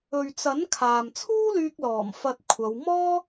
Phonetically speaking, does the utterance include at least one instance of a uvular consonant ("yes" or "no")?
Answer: no